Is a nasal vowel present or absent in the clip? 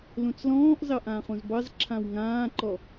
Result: present